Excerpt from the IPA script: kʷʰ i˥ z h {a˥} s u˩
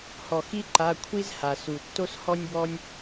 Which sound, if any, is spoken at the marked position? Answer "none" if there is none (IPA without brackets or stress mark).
a˩